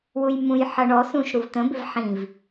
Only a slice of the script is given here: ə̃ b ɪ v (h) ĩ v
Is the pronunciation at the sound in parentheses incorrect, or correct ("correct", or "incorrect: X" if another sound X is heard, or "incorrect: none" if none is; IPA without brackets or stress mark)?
incorrect: ħ